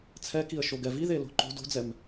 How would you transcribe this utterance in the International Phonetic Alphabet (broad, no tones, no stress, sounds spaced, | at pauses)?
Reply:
t͡sʰ ɛ k i ə̯ ʃ o ɡ ɛ v i ð e l o̤ ǃ o̤ d o̤ d͡z ɛ m